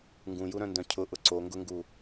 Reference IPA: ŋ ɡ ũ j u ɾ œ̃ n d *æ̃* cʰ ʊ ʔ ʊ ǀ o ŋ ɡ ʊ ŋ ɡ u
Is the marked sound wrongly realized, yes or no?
yes